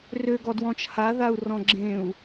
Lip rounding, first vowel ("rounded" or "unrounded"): rounded